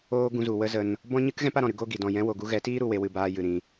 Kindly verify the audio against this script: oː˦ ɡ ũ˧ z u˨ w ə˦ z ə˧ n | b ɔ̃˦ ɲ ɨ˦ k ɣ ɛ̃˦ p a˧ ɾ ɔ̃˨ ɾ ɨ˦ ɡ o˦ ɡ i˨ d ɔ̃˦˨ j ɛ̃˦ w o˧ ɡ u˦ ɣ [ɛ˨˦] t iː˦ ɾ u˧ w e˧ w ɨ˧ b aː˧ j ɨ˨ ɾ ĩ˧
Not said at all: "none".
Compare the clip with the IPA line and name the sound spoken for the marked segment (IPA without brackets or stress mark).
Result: ɛ˨˦